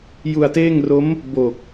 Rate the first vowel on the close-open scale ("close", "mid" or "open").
close